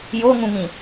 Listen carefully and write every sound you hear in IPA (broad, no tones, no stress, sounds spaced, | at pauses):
j o ŋ ũ ŋ ĩ